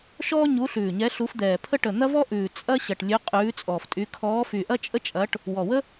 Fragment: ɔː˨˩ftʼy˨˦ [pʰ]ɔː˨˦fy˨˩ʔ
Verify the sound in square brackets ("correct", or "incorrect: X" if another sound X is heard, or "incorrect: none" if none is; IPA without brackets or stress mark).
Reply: incorrect: kʰ